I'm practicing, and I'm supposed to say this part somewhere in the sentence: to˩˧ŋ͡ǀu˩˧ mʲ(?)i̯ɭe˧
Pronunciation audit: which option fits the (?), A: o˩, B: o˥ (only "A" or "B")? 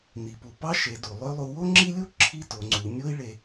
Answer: B